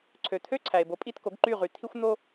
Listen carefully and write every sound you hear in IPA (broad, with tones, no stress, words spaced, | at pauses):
ǀʰø˩t̪ʰø˥˩ ǀʰæ˩e̯bo˩˥pʼi˥˩tko˩˥ɡ ǃy˥˩ʁy˩ t̪ʰi˥xʷ n̪o˥